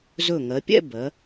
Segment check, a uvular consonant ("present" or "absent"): absent